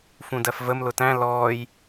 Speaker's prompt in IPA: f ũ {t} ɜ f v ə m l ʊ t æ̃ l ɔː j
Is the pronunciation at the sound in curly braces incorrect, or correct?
incorrect